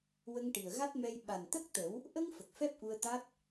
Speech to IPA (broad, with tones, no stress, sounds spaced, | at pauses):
w ə˧ ŋ ʈ i˨˩ ə̯ ɣ a˦˥ t̚ m ɛ˧ j ɓ a˨˩ n t̪ ə˦˥ k̚ t̪ ə˨˩˦ w | ʔ ə˧ ŋ f ə˨˩ k̚ f ɛ˦˥ p̚ ʔ u˧ ə̯ t̪ a˦˥ t̚